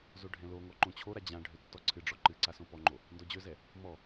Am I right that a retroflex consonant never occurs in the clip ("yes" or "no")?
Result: no